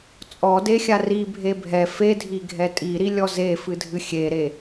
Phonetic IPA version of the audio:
t͡sʼ ɔ d e xʲ a r i bʱ e bʱ ɛ f e dʱ i ɡʱ ɛ tʼ i ɾ i lʲ ɔ z e f ɨ dʱ ɨ xʲ e ɾ e

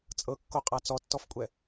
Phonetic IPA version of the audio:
t͡sʼ ɤ kː o qʼ a t͡s ɔ tː ɔ f kʷʼ ɛ

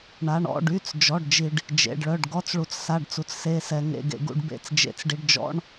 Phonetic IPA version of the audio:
ɳ a˧˥˧ ɳ ɔ̰˧˥˧ ɖ y˧˥˧ t͡s d͡ʒ ɔ˧˥˧ ɖ d͡ʒ i˧ ɖ | d͡ʒ ḛ˧˥˧ ɖ ɭ œ˧˥˧ ɖ ɡ ɔ˧˥˧ t͡s ɭ u˧ t͡s s a˧˥˧ ɖ t͡s u˧ t͡s s e˧˥˧ s ɛ˧ ŋ ḛ˧˥˧ ɡ ḛ˧ ɡ ṵ˧˥˧ ɖ b ḛ˧˥˧ t͡s d͡ʒ ḛ˧ t͡s ɖ i˧ ɖ d͡ʒ ɔ̰˧˥˧ ɳ

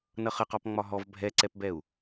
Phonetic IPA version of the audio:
n ʌ χ ə q ɔ p ŋ͡m ɒ ɦ ɔ v bʱ ɛ ǀ ɛ p b ɛ u̯

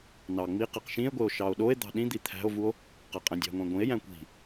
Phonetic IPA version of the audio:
n ɑ ŋ͡m i q e q ʃ ĩ e̯ ɡʷ e o̯ ʃ ɑ o̯ ɗ o e̯ d̪ ɑ̤ ɗ ĩ d̪ i t̪ʰ æ̤ o̯ v u o̯ | q æ qʼ æ̃ dʲ ɑ̤ ŋʷ æ̃ ɡʷ ĩ e̯ j æ̃ kʷ i̤

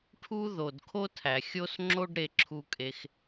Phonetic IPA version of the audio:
ʈʰ u˦ ð o˨ d kʰ o˦ tʰ æ˨ xʲ o˦ s ŋ͡ǁ o˦ ɖ ɾ e˧ ǁʰ u˧ kʼ e˧ x

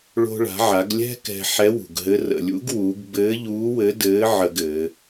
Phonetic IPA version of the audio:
ɭ o̤˧ ɭ a̤˩˧ ʕ a˩˧ ɡ lʲ ɛ̤˥ k ɛ̤˧ ħ ɛ˧˥ w ṳ˩ ɡ ɦ ɘ˧˥ r ə̰˩ lʲ ṵ˧˥ ɡ w uː˩˧ ɡ b ɘː˧˥ ʎ uː˧˥ w ɘ˧˥ d ɘː˧˥ ʕ ə˧ ɡ ɘː˩˧

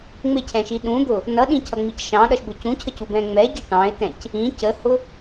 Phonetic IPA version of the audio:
ŋ͡m ɪ cʰ ɛ̃ ʃ i ɗ ũ d̪ ʊ | n ʌ ɗ ĩ cʰ ʌ ŋ͡m i c ʃ ɑ̃ ɗ ʌ ʃ b ʊ c ũ cʰ ə c u b ɛ̃ ŋ͡m ɛ ɟ i ʈ ɑ̃ ɪ̯ t ɛ̃ c | ĩ c ə h ʊ

